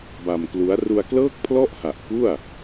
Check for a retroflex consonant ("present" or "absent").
absent